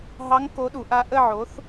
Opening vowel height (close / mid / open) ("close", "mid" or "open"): open